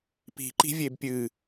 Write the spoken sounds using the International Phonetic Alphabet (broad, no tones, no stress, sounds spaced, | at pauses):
p i̤ ǃ i̤ vʲ e b pʲ ɨ